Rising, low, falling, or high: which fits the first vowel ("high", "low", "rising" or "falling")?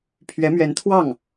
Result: rising